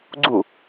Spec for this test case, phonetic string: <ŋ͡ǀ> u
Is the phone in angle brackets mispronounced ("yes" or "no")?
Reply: yes